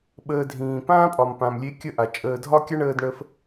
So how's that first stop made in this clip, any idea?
implosive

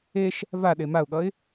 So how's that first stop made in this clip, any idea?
implosive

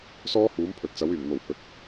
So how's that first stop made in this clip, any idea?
aspirated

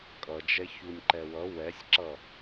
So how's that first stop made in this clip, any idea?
ejective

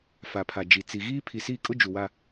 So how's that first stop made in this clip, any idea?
aspirated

